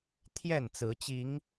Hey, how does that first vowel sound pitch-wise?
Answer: falling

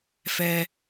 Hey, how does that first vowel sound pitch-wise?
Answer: high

